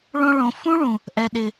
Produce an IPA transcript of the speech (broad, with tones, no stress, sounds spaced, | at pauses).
ɭ õ˧ ɭ õ˨ f ũ˦ ɭ ũ˨ | ʔ ɛ˨ ɗ ɪ˨